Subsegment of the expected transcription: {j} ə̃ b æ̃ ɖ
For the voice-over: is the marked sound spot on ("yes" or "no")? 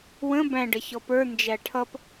no